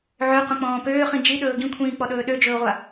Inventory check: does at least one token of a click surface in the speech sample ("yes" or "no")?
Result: no